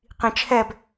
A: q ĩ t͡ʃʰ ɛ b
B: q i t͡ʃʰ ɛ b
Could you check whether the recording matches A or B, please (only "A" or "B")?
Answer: A